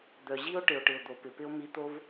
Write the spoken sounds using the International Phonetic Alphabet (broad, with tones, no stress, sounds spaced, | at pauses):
d̪ œ˩ ʑ i˥ o̯ ʈ ɪ˩ o̯ ʈ ɪ˩ o̯ d̪ o˩ p ɪ˩ p ɪ˥ o̯ m i˧ t̪ o˥ v